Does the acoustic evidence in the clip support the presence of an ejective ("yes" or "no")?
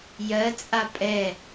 yes